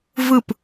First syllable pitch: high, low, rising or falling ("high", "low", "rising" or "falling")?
falling